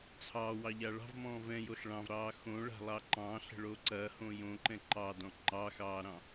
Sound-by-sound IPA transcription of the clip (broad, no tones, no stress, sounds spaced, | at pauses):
t͡sʰ ɑː w ɑ ʎ a ɭ ɑ̤ v m ɔ̃ː v ɛ̃ j o ɬ ɭ ɑ̃ v ɾ ɑː x õ ɭ a̤ lˠ ɑ ǃ ɑ̃ ɬ ə̤ ɭ o ǀ ɐ h õ j õ ǃ ɛ̃ ǃ ɑ d ɔ̃ ŋ͡ǃ ɑ x ɑː ɾ ɑ̃